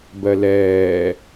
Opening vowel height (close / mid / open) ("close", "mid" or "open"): mid